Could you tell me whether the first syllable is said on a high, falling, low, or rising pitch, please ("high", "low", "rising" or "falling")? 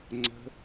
high